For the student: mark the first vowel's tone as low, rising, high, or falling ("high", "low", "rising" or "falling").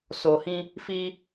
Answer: low